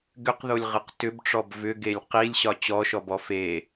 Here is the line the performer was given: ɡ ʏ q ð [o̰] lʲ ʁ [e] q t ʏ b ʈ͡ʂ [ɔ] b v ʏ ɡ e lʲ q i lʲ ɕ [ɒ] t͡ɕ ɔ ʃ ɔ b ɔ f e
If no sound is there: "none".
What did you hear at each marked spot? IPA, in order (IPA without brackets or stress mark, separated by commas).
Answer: o, ɨ, ɔ, ɒ